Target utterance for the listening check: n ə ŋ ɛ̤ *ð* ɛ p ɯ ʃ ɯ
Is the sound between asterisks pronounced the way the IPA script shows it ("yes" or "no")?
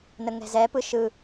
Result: no